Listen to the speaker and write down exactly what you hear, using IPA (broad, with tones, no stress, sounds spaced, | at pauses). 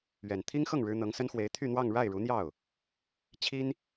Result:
ɥ ɛ˨˩ n t̪ʰ i˥ ŋ x ɤ˥˩ ŋ ɻ ɻ̩˥ n̪ ɤ˧˥ ŋ s ə˥ n x w e˧˥ ɪ̯ t̪ʰ y˥˧ n̪ w ɑ˥˧ ŋ ɻ a˥˩ ɪ̯ ɻ u˧˥ n̪ j ɑ˥˩ ʊ̯ | t͡ɕʰ i˥ n